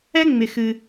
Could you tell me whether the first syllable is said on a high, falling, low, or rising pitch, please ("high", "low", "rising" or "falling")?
high